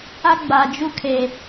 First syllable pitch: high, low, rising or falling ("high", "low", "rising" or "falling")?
high